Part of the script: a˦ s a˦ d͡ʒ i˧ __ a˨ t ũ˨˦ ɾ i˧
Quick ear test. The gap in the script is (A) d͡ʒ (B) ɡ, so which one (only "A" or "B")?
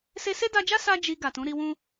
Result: B